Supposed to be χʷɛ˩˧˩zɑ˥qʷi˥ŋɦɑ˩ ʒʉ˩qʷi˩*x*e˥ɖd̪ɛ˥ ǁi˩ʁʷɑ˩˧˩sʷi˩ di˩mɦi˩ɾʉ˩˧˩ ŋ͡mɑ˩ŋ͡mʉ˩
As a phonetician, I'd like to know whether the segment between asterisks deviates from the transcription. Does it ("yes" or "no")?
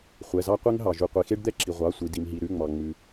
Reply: no